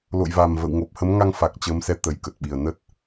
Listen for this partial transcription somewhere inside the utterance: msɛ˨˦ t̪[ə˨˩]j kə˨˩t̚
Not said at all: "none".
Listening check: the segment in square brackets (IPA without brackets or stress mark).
ə˨˩